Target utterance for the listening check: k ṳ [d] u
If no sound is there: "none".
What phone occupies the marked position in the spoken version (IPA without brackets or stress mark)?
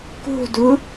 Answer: d